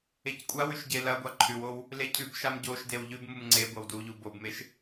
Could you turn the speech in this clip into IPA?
e c kʷʼ a w ʉ ʃ ɟ e l ɐ ɡʷ a ǃʰ ʉ w o w | l e cʰ ʉ b ʃ a m ɟ o ʃ d e w ʎ ʉ b m u m ŋ͡ǀ e ɡʷ ɐ w d u ʎ u b o b m e ʃ

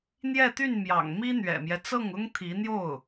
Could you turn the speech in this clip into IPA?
n̪ j ɛ˥˧ t̪ y˥˩ n m j ɑ̰˨˩ ŋ m i˥ n̪ ɥ ɛ̰˨˩ m j ɛ˦ t͡s ɤ˥˩ ŋ ʊ˥ ŋ t̪ʰ i˧˥ n̪ j o˥˩ ʊ̯

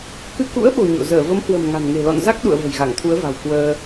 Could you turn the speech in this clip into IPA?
k ɨ˧ k ṵ˧˥ ə̯ ɓ o̤˨˩ ɲ o̰˧˨ z əː˧˩ v ə˨˦ m h w ə̤˨˩ m ŋ a̤˨˩ n ŋ e̤˨˩ l ɔ̰˧˨ n z a˦˥ k̚ ɗ ṵ˧˨ ə̯ v ə̤˨˩ j ɣ a˧˩ ŋ t̪ʰ u˨˦ ə̯ v a̤˨˩ w k w əː˧

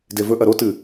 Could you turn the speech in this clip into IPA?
d e v ɵ ʔ ɐ ɾ o t ɨ

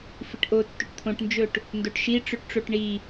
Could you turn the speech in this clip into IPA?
f i ʈ ʔ o tː ɵ ʈ t̪ʰ õ ʈ n d͡ʒ ɵ ʈ | n d o ʈ ʃ i ʈ͡ʂ ɵ ʈ ʈ͡ʂ o ʈ ɳ i

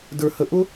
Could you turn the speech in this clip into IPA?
d ə˞˩ h ə˩ ʔ ʊ˥

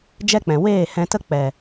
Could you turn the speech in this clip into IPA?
d͡ʒ ɛ˦ k͡p ɛ̃˨ w eː˦˨ h ɛ̃˧ t ə˦ k͡p ɛ˨

